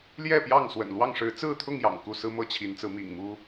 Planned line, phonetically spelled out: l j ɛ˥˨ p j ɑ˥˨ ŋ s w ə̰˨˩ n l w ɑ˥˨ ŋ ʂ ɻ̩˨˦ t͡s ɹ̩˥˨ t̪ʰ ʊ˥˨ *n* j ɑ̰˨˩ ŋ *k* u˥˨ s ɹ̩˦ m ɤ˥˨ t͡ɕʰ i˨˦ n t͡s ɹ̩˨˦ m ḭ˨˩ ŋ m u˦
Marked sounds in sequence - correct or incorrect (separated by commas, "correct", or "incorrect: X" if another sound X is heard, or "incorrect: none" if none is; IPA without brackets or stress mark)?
incorrect: ŋ, correct